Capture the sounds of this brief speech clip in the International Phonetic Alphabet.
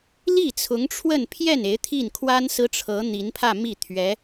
l i˥˩ t͡sʰ ʊ˧˥ ŋ ʈ͡ʂʰ w ə˥˧ n pʰ j ɛ˥˩ n e˧˥ ɪ̯ t̪ʰ i˥˩ n kʰ w a˥ n s ɹ̩˥ ʈ͡ʂʰ ɤ˧˥ n̪ i˧˥ n pʰ ä˥˧ m i˥˩ t̪ʰ ɥ ɛ˧˥

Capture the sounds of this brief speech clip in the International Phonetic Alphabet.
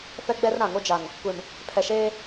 f ɛ˦ ɡ͡b ɛ˦ r ɾ ã˨ ŋ o˦ d͡ʒ a˨ ŋ | kʷ e˨ m | pʰ ɛ˨ ʃ eː˦

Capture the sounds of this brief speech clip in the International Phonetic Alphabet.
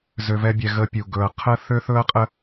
z ø˧ v ɛ˦ bʲ ɛ˧ ɣ ə˧ pʲ u˨ ɡ ɵ˨ ɐ̯ qʰ ə˦ θ ø˦ θ ɵ˦ ɐ̯ qʼ ə˦

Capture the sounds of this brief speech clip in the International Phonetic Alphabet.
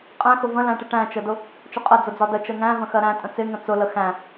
qʼ æ̃ x ʊ v ə̃ l æ̃ ʈ ɪ ʈ æ̃ t͡ʃ ə d ʊ | t͡ʃ ʊ qʼ ɜ d͡z ʊ d͡z ɒ d ə t͡ʃ ɜ ŋ æ̃ v ə̃ x ɜ ɾ æ̃ tʼ ə̃ t͡s ɪ ŋ ə̃ t͡s ʊ l ə x æ̃

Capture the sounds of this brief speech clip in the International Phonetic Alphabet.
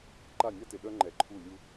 ǃ a˦˨ nʲ a˦ t ɪ˨ ɗ œ˦ ŋ͡ǃ ɛ˨ ǃʰ u˦˨ lʲ u˦

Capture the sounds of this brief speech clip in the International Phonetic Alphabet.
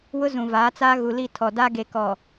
w ʊ˦ z ũ˨ v aː˨˦ t͡s aː˦ ɣ u˨ l i˦˨ tʰ ɔ˨ d a˦ ɡ e˨ k ɔ˨

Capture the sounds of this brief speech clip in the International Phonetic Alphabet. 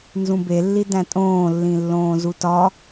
n z ũ b e lː i d æ̃ tʼ õː lː ĩ lː õː z u t ɒ

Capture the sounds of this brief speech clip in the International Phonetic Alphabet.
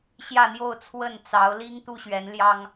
ɕ j ä˥˧ n̪ j o˥˧ ʊ̯ t͡sʰ w ə˥˩ n t͡s ɑ˧˥ ʊ̯ l i˥ ŋ t̪ u˥ ɕ ɥ ɛ˧˥ n l j ɑ˥ ŋ

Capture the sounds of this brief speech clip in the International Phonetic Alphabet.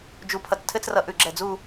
d͡ʒ u˧ pʰ ʌ˧ t͡s tʰ ɘ˥ t͡s r ʌ˧ ʔ ʉ˧˩ ɡ͡ǁ ɛ˧˩ d͡z u˥˧

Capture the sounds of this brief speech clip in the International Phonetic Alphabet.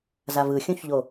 z a v ɯ xʲ ũ ç ʎ o

